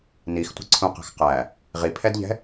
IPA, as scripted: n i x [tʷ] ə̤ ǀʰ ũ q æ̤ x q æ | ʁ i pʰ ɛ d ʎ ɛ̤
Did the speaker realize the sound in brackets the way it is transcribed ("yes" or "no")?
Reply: yes